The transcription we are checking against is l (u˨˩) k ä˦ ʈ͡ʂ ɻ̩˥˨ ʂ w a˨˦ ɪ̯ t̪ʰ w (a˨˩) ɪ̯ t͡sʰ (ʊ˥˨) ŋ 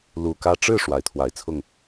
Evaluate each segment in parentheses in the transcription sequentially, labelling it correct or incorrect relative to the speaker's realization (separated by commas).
correct, correct, correct